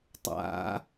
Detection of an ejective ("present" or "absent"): absent